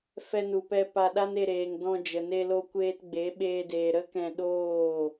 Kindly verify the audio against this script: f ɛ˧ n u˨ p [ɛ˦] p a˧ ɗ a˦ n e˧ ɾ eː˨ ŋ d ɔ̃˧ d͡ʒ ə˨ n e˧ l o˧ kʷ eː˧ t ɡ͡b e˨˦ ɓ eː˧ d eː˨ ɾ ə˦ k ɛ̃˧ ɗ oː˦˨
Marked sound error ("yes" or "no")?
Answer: yes